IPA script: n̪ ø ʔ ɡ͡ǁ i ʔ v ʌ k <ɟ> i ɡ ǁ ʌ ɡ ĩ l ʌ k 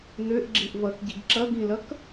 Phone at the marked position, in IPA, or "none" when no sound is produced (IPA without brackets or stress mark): ɟ